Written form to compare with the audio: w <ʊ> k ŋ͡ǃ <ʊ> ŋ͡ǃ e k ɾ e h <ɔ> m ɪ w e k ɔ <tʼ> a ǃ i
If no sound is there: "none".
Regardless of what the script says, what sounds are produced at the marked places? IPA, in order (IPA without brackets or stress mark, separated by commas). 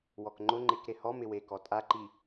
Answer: ɔ, ʊ, ɔ, tʼ